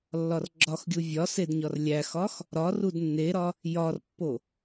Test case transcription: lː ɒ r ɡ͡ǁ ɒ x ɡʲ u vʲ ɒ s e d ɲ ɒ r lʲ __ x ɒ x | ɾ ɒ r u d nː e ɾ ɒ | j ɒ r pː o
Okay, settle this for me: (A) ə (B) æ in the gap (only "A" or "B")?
B